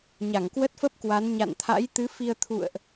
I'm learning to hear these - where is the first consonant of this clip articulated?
palate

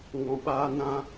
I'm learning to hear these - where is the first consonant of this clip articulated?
velum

